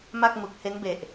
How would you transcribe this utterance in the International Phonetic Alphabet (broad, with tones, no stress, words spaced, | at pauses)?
ma˥˩k̚mu˨˩k̚he˦˥nbe˨˩ʔ